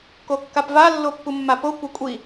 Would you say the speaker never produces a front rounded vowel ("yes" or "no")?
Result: yes